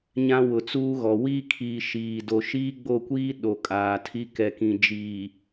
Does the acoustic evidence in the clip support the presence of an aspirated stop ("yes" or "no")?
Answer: yes